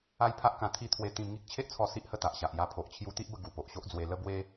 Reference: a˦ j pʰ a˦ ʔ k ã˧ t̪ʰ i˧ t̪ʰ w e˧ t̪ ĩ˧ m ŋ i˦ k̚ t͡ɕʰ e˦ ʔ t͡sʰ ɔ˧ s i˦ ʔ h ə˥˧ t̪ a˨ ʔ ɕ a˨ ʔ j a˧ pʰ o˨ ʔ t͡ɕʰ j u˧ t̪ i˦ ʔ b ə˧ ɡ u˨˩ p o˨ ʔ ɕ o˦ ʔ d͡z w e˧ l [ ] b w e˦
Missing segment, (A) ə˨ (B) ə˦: B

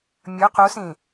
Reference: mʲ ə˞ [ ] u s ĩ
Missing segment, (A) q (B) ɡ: A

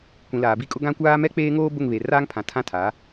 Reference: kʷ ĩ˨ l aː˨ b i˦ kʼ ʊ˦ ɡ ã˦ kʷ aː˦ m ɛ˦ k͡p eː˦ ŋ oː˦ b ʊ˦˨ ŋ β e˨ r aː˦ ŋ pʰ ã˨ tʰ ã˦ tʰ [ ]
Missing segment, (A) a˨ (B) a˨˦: B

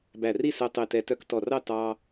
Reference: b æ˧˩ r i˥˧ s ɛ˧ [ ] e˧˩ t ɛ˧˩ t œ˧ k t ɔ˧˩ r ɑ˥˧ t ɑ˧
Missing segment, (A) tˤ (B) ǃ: A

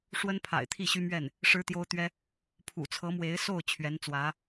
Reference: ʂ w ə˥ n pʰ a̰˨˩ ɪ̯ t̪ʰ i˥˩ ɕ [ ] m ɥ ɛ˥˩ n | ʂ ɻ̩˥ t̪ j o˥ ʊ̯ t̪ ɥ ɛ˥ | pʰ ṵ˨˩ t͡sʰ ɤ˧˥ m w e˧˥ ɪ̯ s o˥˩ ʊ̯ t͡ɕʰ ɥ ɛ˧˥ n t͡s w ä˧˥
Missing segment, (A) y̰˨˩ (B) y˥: B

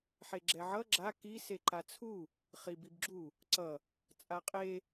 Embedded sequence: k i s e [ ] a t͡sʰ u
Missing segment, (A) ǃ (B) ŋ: A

